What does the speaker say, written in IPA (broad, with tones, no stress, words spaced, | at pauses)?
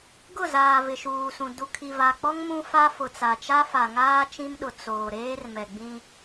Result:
ɡʊ˦˨zaː˨ vɪ˨ʃuː˨sũ˨ du˨kʰi˨va˨k͡pɔ˦ŋ mũ˦fa˦fʊ˨t͡sa˨ t͡ʃa˦fa˨ŋaː˦ t͡ʃĩ˦mɗʊ˨ t͡soː˨ ɾeː˦rmɛ˨ɡ͡bĩ˦